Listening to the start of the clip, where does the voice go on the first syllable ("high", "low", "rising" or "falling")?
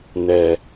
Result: low